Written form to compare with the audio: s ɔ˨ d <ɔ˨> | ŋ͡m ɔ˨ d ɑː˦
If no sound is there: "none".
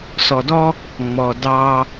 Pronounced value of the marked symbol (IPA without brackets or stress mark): ɔ˦